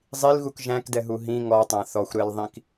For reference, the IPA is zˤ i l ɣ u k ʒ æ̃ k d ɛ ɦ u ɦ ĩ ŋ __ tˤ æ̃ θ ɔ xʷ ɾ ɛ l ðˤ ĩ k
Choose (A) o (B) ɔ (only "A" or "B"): B